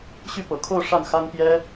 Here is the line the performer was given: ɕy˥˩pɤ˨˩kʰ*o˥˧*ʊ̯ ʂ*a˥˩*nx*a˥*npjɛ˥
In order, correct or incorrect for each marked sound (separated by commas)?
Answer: correct, correct, correct